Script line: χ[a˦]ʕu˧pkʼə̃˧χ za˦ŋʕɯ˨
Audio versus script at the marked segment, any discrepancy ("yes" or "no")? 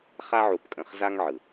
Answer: no